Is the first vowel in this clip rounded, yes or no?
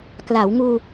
no